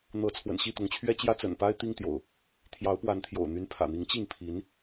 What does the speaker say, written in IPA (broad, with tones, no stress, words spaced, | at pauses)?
n̪ɤ˨˦ t͡sʰwə̰˨˩nɕi˥˨t̪ʊ˨˦ŋt͡ɕʰɥɛ˦ t͡ɕjä˦t͡sə̰˨˩npa˦ɪ̯ t̪i˦ŋt̪jo̰˨˩ʊ̯ | t̪ʰjɑ˨˦ʊ̯pwa˨˦nt̪ʰjo̰˨˩ʊ̯ n̪y˨˦n pʰä̰˨˩n̪i˨˦ŋt͡ɕi˥˨ŋ pʰi˨˦n